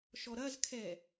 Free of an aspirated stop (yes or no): no